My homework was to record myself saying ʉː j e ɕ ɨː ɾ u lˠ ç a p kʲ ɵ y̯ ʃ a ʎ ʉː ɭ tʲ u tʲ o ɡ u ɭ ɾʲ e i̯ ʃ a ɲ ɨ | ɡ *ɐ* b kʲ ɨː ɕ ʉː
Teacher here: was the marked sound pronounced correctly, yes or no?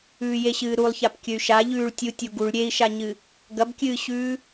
yes